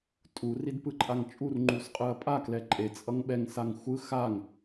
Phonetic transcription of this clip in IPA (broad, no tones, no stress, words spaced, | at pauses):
tʼu ridpɯǃʼaŋt͡ʃʼur ŋ͡ǃusqʼɯɐ̯pʼa klɛǃʼe t͡sʼʌŋɓɛŋ saŋxʷɯ xaŋ